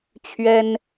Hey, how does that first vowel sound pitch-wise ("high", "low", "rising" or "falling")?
high